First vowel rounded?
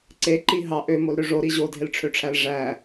no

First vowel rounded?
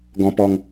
yes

